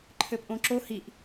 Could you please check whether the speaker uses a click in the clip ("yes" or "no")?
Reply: yes